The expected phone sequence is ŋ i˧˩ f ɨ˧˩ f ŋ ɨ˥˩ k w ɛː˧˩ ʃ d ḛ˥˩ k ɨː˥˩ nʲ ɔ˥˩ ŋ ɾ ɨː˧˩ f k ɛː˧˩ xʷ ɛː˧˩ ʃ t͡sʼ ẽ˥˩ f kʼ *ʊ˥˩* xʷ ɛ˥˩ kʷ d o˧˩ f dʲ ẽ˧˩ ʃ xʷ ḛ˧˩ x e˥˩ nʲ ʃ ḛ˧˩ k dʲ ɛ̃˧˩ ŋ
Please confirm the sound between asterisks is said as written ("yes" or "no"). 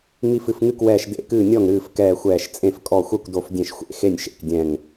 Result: no